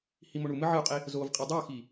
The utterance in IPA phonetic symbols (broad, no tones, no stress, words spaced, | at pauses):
himoɳumɨ ʕɨu̯qʼi | zovqʼi dˤoxi